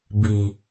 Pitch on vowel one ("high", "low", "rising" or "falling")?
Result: low